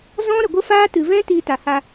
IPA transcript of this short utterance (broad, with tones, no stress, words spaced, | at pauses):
zɔ̃˦ ɾə˨ɡʷə˦faː˦ tɨ˨vɛ̃˦ tiː˧ta˨ha˧